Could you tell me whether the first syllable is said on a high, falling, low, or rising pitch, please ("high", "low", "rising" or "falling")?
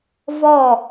falling